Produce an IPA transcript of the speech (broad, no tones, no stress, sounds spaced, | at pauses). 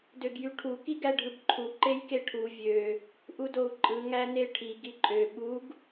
d ø ɡ j y ʈʰ u k i ɡ æ ɖʱ ɯ b ǃʰ u ǃ e j k e ʈʰ u vʲ ø | ʔ u d o u̯ ǃʼ ɯ ŋ æ n e ʈʰ i ɡ i ǃʼ ø ɓ u ɡ